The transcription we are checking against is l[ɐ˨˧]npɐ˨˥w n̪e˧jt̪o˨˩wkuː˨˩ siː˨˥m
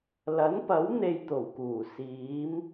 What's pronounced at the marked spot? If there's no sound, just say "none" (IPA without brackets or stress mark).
ɐ˨˥